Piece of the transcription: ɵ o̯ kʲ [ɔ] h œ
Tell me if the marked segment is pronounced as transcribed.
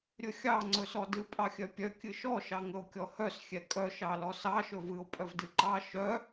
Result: yes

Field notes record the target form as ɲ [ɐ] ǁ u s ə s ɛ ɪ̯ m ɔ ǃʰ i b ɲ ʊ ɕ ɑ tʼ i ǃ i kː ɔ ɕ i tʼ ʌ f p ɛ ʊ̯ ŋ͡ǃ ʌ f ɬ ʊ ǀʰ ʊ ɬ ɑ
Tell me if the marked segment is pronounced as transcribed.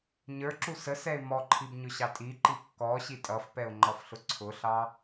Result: no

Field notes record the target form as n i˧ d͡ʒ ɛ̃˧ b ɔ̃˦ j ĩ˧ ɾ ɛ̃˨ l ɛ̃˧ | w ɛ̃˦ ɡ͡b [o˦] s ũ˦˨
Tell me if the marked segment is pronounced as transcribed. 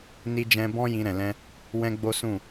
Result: yes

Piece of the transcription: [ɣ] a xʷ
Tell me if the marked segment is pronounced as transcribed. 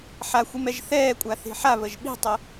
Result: no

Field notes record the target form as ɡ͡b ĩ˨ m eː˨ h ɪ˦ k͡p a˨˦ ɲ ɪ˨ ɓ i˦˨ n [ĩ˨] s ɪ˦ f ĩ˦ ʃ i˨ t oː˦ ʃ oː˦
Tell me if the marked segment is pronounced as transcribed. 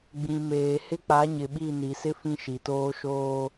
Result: no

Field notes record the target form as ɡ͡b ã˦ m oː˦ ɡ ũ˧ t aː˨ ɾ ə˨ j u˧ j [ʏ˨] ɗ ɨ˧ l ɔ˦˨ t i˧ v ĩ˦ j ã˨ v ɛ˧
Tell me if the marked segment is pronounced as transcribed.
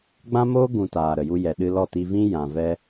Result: no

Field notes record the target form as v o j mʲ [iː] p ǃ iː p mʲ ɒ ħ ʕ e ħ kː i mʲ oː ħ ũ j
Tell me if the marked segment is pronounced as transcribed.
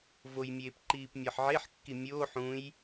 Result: no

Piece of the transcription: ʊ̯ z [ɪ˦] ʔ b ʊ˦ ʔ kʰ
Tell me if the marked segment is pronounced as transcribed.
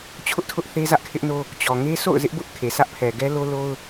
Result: yes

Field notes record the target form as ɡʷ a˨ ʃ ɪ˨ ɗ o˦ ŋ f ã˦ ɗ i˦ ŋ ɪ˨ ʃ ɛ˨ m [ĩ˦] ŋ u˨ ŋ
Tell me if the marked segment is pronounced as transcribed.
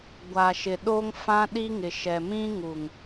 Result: yes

